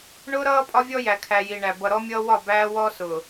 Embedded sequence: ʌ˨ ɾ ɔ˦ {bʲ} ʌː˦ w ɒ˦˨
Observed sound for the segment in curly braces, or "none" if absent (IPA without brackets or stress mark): mʲ